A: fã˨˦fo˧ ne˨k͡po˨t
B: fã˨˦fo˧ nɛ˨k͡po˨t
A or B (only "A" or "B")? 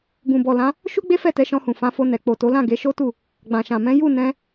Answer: B